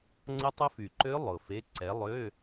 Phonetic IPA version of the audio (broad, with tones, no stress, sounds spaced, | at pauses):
ŋ͡ǀ ə˦˥ tˤ ʊ˦˥ f y˨˩ ǃ ø˦˥ lˠ ʊ˨˩ f e˧˥˧ ǀ ɛ˨˦ lˠ ø˧˥˧